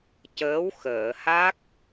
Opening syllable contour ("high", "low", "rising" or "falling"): rising